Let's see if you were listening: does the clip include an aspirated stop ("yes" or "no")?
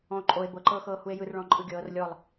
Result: no